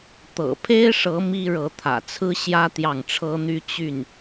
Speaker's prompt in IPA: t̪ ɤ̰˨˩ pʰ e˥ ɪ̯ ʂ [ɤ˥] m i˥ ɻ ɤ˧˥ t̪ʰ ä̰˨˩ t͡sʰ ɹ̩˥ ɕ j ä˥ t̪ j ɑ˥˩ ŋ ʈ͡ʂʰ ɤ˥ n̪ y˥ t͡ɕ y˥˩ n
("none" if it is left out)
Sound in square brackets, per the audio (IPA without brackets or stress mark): ɤ˧˥